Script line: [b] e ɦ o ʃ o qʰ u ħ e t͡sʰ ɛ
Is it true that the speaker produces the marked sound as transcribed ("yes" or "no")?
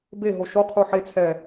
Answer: yes